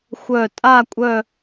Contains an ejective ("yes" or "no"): yes